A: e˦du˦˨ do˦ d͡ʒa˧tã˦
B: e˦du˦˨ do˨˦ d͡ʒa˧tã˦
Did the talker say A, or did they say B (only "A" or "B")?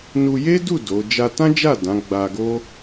B